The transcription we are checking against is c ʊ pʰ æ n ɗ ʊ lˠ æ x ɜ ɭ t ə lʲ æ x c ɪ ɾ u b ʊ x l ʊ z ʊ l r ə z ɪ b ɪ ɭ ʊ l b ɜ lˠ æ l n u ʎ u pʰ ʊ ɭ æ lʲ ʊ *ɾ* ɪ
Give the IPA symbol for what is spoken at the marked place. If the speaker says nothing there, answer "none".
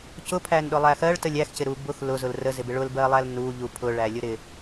ɾ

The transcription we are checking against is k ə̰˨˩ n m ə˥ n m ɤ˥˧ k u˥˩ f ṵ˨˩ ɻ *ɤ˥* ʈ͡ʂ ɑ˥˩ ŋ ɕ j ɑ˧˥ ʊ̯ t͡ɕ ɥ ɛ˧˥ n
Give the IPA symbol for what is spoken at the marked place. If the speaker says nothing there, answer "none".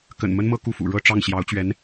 ɤ˥˧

